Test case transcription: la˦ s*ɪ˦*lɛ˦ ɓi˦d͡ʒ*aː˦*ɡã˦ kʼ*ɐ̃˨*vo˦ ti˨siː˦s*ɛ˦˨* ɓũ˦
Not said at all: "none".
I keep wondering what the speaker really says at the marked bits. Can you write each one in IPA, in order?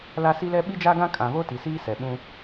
i˦, a˦, ã˨, ɛ˨

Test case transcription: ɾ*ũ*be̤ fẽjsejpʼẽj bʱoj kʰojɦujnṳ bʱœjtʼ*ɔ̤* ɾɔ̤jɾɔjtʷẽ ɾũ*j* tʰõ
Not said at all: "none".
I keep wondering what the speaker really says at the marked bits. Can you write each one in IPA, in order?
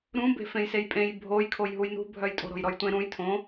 ũ, o̤, j

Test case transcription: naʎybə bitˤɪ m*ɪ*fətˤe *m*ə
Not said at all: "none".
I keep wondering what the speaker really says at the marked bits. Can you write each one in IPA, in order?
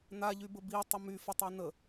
y, n

